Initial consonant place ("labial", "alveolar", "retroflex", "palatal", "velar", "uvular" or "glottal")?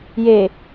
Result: palatal